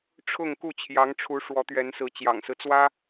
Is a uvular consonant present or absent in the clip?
absent